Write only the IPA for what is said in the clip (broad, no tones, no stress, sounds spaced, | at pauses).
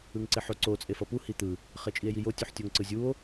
ɯ ŋ ǀ e ħ o ǀ o t͡sʼ e f ʌ p u h i t̪ ɯ | χ e t͡ʃʼ i e̯ j i j o tʲ u ħ tʲ o ŋ ǀ ɯ zʲ u o̯